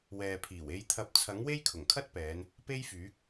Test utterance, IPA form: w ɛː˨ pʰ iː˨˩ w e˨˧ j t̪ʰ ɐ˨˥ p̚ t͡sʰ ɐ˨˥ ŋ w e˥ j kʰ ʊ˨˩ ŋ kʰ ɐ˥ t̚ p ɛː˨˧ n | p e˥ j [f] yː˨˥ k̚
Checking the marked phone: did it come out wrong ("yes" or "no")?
no